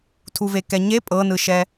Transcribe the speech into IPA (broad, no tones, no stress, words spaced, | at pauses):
tʰuvekɛɲe pʼɤnɯʃɛ